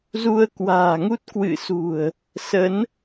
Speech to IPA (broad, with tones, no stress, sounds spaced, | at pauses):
z u˧ ə̯ k w a̤ː˨˩ ŋ u˦˥ t̚ k w ɨ̰˧˨ s ṳ˨˩ ə̯ | s ə˨˦ n